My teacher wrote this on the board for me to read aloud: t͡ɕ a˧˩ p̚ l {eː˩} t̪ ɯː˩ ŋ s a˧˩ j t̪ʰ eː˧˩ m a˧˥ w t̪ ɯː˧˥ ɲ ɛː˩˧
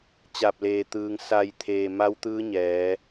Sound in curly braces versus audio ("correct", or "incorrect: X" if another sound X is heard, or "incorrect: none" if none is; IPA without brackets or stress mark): correct